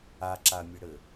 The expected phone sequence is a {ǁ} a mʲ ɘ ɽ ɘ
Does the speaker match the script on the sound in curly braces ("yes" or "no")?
yes